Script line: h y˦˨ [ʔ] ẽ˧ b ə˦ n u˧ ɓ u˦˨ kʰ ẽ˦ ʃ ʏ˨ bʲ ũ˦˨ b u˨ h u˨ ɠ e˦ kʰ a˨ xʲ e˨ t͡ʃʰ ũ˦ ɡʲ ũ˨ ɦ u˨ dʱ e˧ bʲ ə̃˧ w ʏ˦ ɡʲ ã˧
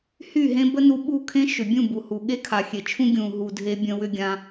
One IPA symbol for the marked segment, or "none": ɦ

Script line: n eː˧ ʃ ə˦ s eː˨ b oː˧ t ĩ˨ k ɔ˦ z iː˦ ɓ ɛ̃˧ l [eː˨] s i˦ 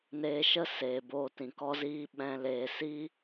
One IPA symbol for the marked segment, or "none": eː˨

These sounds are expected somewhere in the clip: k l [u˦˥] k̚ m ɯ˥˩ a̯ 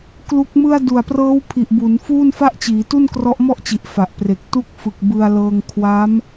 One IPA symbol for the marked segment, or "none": u˦˥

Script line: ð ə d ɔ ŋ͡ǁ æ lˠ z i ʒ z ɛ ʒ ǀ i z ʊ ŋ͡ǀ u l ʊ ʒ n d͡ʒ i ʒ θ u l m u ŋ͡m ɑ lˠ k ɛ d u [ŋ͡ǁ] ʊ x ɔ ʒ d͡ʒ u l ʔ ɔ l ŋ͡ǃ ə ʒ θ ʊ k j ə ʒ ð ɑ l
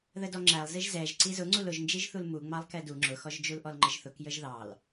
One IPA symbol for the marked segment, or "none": ŋ͡ǁ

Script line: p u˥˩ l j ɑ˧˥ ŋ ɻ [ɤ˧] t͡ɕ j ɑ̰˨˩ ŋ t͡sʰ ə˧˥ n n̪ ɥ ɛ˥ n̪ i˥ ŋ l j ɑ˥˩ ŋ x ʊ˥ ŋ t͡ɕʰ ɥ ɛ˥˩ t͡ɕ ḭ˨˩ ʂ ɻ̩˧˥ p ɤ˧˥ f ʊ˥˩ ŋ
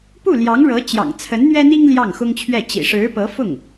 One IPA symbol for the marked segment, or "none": ɤ˧˥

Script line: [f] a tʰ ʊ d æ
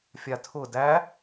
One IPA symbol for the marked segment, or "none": fʲ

